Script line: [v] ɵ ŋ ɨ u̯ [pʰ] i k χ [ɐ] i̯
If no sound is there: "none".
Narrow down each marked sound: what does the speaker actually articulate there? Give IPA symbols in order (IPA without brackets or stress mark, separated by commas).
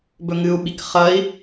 b, ɓ, ɐ